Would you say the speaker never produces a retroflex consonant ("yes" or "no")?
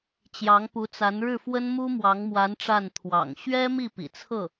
no